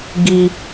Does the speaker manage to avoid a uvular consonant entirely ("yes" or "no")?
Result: yes